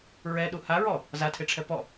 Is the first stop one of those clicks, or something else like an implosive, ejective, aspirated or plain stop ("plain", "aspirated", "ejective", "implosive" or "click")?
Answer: implosive